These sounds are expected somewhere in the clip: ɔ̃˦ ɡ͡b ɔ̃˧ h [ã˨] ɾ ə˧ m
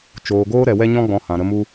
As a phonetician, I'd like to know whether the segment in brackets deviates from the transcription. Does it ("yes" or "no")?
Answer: no